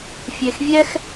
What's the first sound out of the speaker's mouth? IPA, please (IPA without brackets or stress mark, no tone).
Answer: fʲ